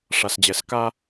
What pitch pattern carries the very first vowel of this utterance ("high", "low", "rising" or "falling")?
low